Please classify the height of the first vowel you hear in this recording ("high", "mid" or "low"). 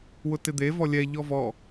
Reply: high